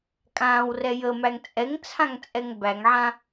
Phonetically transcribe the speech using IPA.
kʼ ãː w r ɛ j ə m æ ŋ t͡sʼ ɛ ŋ t͡sʰ ã ŋ t͡sʼ ɛ ŋ b æ ŋ ʕ ã

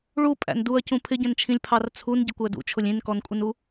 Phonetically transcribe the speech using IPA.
ɭ u pʼ æ̰ n d u ɐ̯ c ũ pʰ ɪ ɟ ɛ̃ n t͡ʃʰ ĩ lʲ pʰ ɑ r t͡sʰ u n ɟ ɪ kʷ æ d ṵ t͡ʃʰ ʊ lʲ ĩ n k ɔ n kʷʼ ɪ n u

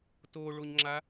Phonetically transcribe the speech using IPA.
t o ɭ o ɲ ŋ͡ǁ a

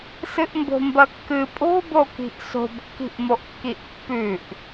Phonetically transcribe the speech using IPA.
s ɨ ʔ m b o̤ m b ɐ kː ɨ pʼ o̤ b o k i̤ ʔ s o̤ b kː i̤ ʔ m o ʔ kː i ʔ pː ʉ ʔ

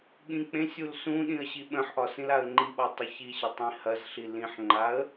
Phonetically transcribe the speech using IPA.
ɠ ĩ k͡p ẽ sʲ u l s ũ ɗ ĩ ə̯ ɕ i ɓ ə̃ ħ ʔ ɒ s ĩ l a ə̯ ŋ͡ǃ i ɓ ɒ tˤ ə ç i ɕ ə tˤ ĩ h ɐ z ɬ i l ĩ ħ ŋ͡ǃ a ə̯

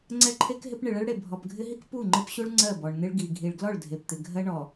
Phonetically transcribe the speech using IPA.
ŋ͡ǀ ɛ˦ ǃʰ e˦ k ɦ ɪ˦ p ɳ ɪ˨ ɭ ɛ˦ ɭ ɽ e˨ bʱ ɔ˨ p ɡʱ ɪ˦ ɦ i˦ k p u˦˨ ŋ͡ǃ ɪ˦ p ɕ u˦ ɭ ŋ͡ǀ ɜ˦˨ b ɔ˨ ɳ n̪ ɪ˦ ɭ ɡ i˨ ɡʱ i˨ ɭ ɡ l ɔ˦˨ ɭ dʱ e˨ p t̪ ɪ˨ ɡʱ ɜ˦ ɳ ɔ˨

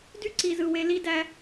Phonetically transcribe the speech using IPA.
d y˦ ǀ i˨ z ɯ˨ w e˨ l i˦ d æ˦

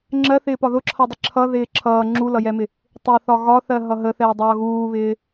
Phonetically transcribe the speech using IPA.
ŋ͡ǁ ɜ θ ɪː p ɒ ð ʊ ǁʰ ʌ dˤ ɪ ǁʰ ʌ ð ɪː ǁʰ ʌː ŋ͡ǁ u l ʌ j ɛ m ɪ | tˤ ɪ θ ɒ ɣ ɒ θ ɜ ɦ ʌ ɦ ə θ ɛː dˤ ʌː ɣ uː β ɪː

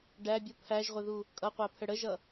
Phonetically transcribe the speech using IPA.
ɖ æ bʲ u pʰ æ ʒ ʁʷ ɪ ð u | kʼ ʌ qʷ æ pʰ ə ɽ ə ʒ ʌ

